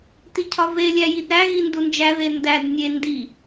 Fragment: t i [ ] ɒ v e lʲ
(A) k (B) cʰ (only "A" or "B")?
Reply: B